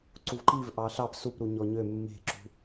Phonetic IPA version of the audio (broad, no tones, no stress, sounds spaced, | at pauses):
ǀ u v ǃ i v ʔ ɑ ɬ ɑ p s u p ɾ u ɲ ɔ ɲ ø mː e̤ ǁ ṳ